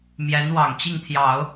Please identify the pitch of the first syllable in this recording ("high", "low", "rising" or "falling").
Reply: rising